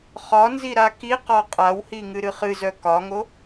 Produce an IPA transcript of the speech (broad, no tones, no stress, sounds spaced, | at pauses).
χ ɒ n z i ɾ a k i q ɔ qʼ a w h i ŋ ɨ ɾ ɨ χ ɨ z œ k ɒ ŋ o